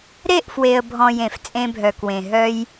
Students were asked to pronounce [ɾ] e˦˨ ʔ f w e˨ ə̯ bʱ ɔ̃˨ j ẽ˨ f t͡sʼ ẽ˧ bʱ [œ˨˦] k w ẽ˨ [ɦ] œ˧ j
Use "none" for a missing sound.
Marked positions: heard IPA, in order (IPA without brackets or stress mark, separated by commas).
ɾ, œ˨, ɦ